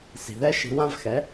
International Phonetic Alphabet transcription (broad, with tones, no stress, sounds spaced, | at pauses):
s i̤˩ ð ɛ˥ ʃ i̤˧ w ã˥ v x ɛ˩˥